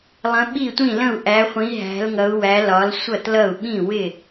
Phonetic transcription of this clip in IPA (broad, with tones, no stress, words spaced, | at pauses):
lˠə̃˨˦ɓi˥˩tʷĩ˥˩lə̃˥˩u̯ ʔæ˨˦χʷĩ˨˦ ɦæ̤˨˦lŋʌ˨˦u̯wæ˨˦ lɒ˨˦lsʷʌ˥˩tlʌ˥˩u̯ ɓĩ˥˩wɪ˥˩